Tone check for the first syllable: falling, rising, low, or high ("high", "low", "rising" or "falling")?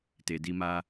low